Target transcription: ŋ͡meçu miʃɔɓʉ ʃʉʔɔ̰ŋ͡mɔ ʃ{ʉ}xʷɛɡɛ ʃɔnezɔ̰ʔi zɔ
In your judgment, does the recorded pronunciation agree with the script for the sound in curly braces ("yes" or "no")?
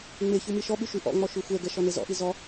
yes